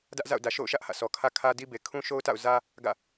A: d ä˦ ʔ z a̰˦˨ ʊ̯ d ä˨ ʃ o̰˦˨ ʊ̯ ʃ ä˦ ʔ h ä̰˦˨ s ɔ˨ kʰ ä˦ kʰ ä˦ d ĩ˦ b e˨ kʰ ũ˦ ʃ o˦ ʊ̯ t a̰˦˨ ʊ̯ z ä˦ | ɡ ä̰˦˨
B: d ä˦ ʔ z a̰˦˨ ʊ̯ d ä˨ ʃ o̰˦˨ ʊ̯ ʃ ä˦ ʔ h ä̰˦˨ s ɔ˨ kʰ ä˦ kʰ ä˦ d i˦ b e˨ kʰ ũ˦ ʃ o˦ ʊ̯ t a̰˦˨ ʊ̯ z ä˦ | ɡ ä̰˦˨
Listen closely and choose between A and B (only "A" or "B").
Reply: B